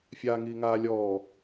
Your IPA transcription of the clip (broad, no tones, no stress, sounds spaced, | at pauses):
fʲ aː ŋ iː ŋ aː lʲ ɔː